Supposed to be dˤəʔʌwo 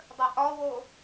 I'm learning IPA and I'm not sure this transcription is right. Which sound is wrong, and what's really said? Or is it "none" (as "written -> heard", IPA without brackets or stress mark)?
ʌ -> ɒ